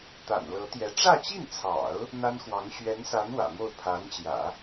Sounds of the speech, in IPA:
t̪a̰˨˩nlɤ˧˥t̪jɛ˧˥ ʈ͡ʂä˥˧t͡ɕi˥˩nt͡sʰɑ̰˨˩˦ʊ̯ | n̪a˥nxwɑ˧˥ŋ ɕɥɛ˧˥nsa˧˥n wä̰˨˩mo˥˩ʊ̯ pʰa˧˥nt͡ɕjä̰˨˩˦

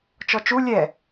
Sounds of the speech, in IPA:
t͡ʃɔt͡ʃu lʲɛ

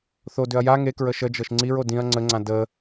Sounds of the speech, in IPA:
θodʏɐ̯ ja ŋekɹə ʃə d͡ʒɤʃŋ͡ǀiɹ odĩɐ̯ ŋ͡ǀəŋ͡ǀã də

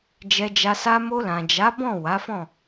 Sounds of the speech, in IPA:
d͡ʒɛ˧d͡ʒa˧sa˦ mo˧lã˨d͡ʒa˨˦ bɔ̃˦˨ wa˨˦fɔ̃˦˨

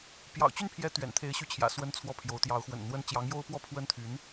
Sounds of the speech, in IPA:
pjɑ̰˨˩ʊ̯t͡ɕy˥˩npʰjɛ˧˥ t̪ɥɛ̰˨˩nt̪ʰe˧˥ɪ̯ɕy˧˥t͡ɕʰjä̰˨˩ swə˥nt͡sʰwɔ˥˩pʰjo˧˥ʊ̯ t̪jɑ˧˥ʊ̯xwə̰˨˩nn̪wə˥n t͡ɕjɑ˧˥ŋjo˥ʊ̯pwɔ˥˩ pʰwə˥nt̪ʰy˧˥n

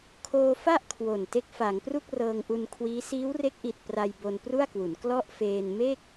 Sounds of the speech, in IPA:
kʰoː˧fa˥˩ʔ kʰwo˨˩n te˦˥k̚fa˩˦ŋpru˥˩k̚ rɤː˧ŋʔu˧nkʰwiː˦˥ siː˦˥wre˦˥k̚ʔi˨˩t̚ pra˧j bo˧npru˥˩a̯kwu˩˦n klɔ˥˩ʔfeː˧n me˥˩k̚

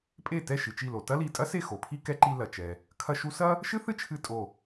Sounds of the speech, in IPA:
pʼe˥˩ tɛ˥˩ʃɨ˩t͡ʃi˧˩lo˩ tɐ˥li˧˩ tʼɐ˥se˥˩ xo˩pʰi˥kɛ˧˥ǃi˧ lɐ˩t͡ʃɛ˩ | kʰɐ˧ʃu˧sɐ˥ | ʃɨ˥θɨ˥t͡ʃʰɨ˧˩ tʼo˧˩

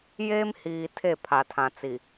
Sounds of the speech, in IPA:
jeː˦mhiː˨ tʰe˦˨pʰa˨tʰã˨t͡si˨

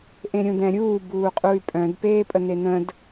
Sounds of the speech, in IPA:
ʔẽɾʲũd̪ɛ̃ɾʲuː buːqʼuy̯pʼœ̃d peːpʼənen̪ə̃d

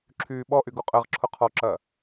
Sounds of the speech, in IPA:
ǁʰyːɓɔʔy ɡuqʼəʁǁʰʊ qʰɔǁɐ

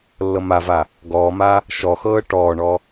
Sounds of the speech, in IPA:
lːɤmava | ɡɔːma | ʃɔxɤː ʈɔːɳɔ

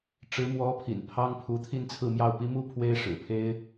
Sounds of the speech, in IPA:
ʈ͡ʂɻ̩˧˥mwɔ˧˥pʰḭ˨˩n pʰɑ˥ŋ pʰu˧˥t̪ʰi˥˧nt͡sʰɹ̩˥˧mjɑ˥˩ʊ̯ pi˥mu˥ pʰwe˥ɪ̯ʂɻ̩˨˩pʰe˥ɪ̯

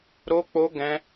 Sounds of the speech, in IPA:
ɾo˦k͡po˦ ɡɛ̃˦

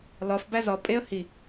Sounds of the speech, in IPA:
lɒf bæzɒ pʼeə̯ hi

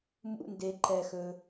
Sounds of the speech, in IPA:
mṵ˧˥˧nde˨ ǃɛ˨xɵ˨

